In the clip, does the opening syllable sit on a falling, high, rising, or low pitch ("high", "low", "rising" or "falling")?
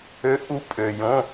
rising